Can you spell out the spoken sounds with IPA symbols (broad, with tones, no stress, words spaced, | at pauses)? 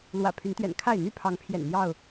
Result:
lwä̰˨˩ pʰy˨˦nt̪ɥɛ̰˨˩n kʰa˥˨ɪ̯ n̪y˥˨pʰɑ˨˦ŋpʰjɛ̰˨˩n n̪jɑ˥˨ʊ̯